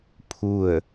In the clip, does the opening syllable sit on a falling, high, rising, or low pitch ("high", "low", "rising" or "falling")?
falling